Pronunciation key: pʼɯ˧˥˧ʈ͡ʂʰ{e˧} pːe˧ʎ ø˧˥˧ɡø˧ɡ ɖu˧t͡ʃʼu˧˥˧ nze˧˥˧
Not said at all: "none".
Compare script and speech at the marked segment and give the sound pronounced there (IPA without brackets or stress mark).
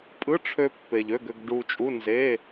ø˧